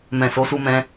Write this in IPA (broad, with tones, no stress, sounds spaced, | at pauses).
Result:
m ɛ̃˨ s o˨˦ s u˧ m ɛ̃˧